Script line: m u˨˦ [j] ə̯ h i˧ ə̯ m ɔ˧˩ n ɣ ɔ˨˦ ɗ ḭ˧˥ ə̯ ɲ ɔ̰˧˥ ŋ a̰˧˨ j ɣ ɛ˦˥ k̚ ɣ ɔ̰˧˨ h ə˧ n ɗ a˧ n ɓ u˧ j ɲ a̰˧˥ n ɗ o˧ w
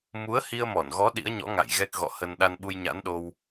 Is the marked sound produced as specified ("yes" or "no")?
no